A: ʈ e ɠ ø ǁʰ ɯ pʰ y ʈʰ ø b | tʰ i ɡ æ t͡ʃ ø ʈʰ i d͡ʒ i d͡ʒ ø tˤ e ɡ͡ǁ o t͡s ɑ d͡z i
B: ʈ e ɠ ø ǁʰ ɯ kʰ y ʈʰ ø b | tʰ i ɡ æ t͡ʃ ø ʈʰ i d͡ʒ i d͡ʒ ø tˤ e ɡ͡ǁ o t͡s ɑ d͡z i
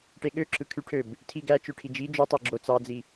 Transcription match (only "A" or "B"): B